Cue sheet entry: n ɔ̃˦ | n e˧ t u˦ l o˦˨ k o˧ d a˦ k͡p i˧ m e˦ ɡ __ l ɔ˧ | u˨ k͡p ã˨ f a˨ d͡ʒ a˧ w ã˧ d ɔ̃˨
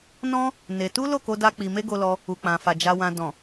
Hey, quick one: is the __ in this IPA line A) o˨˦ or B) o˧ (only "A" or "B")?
B